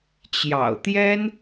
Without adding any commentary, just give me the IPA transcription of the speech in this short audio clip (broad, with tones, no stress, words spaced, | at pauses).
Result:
t͡ɕjɑ̰˨˩ʊ̯t̪jɛ˥n